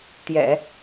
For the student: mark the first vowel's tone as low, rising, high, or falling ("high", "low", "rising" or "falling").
low